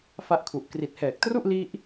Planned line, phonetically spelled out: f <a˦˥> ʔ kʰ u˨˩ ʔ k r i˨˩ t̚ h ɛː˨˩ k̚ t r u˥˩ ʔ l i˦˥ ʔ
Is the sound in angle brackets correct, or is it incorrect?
correct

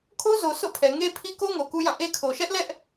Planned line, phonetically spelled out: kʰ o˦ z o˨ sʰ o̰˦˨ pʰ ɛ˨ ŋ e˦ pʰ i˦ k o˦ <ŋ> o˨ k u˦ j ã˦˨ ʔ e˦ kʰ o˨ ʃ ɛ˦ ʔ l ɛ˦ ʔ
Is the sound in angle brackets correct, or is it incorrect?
correct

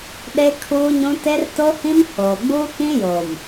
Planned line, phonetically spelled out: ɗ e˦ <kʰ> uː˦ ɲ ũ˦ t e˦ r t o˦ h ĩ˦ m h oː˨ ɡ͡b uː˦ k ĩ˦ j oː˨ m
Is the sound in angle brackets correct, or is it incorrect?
correct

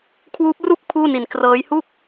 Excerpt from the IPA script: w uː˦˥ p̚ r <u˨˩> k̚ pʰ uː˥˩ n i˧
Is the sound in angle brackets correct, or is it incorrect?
incorrect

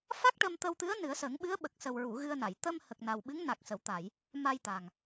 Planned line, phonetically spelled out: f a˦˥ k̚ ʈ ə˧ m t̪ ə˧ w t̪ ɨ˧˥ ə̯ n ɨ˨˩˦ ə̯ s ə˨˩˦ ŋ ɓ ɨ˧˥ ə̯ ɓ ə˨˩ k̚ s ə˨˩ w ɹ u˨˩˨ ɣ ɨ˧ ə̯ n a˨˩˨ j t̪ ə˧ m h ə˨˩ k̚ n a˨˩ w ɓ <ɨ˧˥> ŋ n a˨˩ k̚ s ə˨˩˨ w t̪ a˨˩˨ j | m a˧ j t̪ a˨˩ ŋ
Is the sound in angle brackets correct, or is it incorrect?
correct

